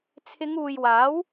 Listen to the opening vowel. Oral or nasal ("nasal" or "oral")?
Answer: oral